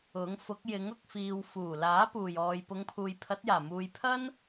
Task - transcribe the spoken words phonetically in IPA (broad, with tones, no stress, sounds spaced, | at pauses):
ʊ˨˥ ŋ f ʊ˨˥ k̚ j ɪ˨˥ ŋ ʊ˧ k̚ f iː˨ w f uː˨˩ l aː˨˥ p uː˨˩ j ɔː˨ j p ʊ˨˧ ŋ pʰ uː˨ j pʰ ɐ˨˥ t̚ j aː˨˩ m uː˨ j pʰ ɐ˥ n